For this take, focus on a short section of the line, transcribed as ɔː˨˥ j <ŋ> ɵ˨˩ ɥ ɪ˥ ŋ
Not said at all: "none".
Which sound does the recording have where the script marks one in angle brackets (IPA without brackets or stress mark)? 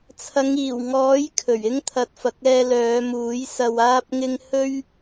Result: kʰ